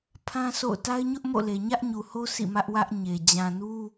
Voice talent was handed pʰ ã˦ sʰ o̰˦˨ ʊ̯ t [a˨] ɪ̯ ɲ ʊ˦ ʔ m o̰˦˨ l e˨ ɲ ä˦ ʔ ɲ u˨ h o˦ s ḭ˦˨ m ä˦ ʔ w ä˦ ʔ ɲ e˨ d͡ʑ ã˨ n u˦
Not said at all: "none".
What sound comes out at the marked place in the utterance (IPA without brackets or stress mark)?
a˦